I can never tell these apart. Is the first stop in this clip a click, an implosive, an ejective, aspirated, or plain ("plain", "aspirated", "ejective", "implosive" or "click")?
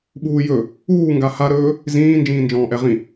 implosive